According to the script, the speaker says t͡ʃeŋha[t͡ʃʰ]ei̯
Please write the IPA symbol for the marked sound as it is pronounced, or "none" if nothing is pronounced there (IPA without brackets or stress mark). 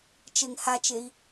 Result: t͡ʃ